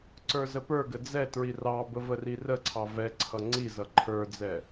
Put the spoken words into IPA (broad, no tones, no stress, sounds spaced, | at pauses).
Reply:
ǀ ə˞ z ə p ə˞ ɡ ə d͡z ɛ t ɹ i r ɑ b ə v ə r i r ə ǀʰ ɑ v ɛ ǀʰ ʌ ŋ͡ǀ i z ʌ ǃʰ ə˞ d͡z ɛ